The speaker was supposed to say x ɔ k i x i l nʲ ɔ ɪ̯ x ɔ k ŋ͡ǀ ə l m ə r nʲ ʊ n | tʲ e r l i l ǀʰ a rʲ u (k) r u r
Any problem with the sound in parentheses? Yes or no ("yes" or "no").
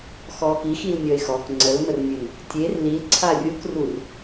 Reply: no